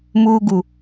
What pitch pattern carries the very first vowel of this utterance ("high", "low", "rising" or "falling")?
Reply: low